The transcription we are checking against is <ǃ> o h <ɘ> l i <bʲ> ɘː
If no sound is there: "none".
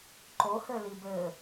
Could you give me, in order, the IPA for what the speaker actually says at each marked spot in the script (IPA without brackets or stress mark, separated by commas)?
ǃ, ɘ, b